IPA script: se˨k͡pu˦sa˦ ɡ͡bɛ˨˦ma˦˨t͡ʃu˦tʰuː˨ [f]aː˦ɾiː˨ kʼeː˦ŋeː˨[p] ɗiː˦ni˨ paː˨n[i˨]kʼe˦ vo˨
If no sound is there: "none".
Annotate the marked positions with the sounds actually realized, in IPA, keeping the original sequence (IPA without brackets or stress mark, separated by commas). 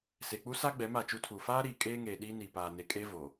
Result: f, none, e˨